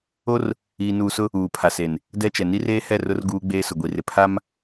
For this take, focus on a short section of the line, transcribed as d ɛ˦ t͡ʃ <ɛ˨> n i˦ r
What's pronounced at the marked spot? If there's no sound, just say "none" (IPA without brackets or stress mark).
ɛ˨